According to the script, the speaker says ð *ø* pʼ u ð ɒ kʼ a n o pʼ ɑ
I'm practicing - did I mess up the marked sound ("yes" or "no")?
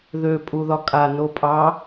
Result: no